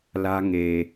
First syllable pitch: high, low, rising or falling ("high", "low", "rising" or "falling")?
high